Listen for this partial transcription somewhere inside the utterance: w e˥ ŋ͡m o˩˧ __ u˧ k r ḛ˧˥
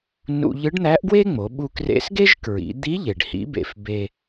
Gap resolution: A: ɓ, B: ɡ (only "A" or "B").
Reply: A